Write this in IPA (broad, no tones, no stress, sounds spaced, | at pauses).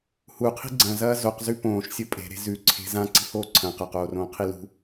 h u qʰ i̤ ɡ͡ǀ ɐ̃ z ɐː z o q z ʉ p õː ʃ sʲ o pʼ e̤ ɾ e̤ z ʉ ǀʰ e̤ z ã ǀ i̤ h oː ǀʰ ɐ̃ q ɐ q oː r õː qʰ i l ṳ